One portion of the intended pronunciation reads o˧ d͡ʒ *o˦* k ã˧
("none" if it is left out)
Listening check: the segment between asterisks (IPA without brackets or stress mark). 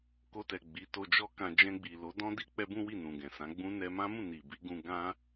ɔ˦